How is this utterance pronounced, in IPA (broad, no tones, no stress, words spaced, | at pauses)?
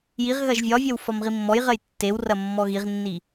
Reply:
jiʁ ɣɐʒvʲɒvʲɜw fɒmʁimːɔjʁɜj tːewrɐ mːɔɣiʁnːi